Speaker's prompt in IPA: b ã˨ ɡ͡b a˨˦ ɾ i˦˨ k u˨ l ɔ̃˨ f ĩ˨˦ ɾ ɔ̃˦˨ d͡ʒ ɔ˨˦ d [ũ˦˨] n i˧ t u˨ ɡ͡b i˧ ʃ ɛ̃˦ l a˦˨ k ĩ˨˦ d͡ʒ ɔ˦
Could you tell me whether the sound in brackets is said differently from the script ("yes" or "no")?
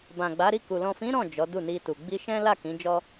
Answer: yes